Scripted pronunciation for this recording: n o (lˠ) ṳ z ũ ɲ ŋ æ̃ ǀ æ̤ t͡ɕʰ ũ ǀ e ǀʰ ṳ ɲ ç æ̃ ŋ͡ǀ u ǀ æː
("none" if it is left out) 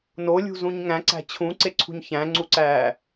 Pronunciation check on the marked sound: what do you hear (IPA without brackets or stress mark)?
lʲ